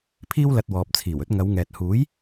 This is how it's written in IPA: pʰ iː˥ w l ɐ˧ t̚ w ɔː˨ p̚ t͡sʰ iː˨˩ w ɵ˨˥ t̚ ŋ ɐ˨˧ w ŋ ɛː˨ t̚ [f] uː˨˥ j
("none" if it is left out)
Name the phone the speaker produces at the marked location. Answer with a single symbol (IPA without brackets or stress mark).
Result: h